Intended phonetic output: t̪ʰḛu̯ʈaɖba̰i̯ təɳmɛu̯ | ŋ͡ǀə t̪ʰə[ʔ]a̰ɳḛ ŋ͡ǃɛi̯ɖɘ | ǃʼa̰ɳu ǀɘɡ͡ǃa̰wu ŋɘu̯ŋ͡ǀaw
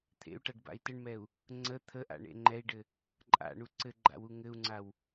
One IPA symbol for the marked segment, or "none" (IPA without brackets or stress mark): ʔ